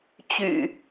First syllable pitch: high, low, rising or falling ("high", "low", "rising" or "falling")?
low